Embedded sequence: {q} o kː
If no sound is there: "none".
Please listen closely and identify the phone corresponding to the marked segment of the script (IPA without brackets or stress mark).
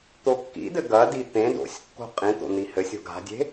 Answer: t̪